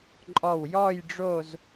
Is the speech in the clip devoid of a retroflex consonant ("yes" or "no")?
no